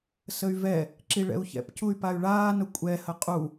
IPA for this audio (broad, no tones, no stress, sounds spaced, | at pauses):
s ə y̯ v ɛ | ǁ i ɭ ɛ̰ u̯ ç ɛ̰ p c u y̯ p a y̯ ɭ aː n ʊ kʷʼ ɛ h ə qʼ u